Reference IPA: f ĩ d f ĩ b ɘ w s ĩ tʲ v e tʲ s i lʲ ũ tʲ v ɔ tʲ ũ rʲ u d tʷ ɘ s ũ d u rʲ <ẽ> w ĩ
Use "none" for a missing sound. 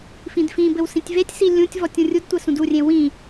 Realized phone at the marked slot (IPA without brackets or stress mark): ẽ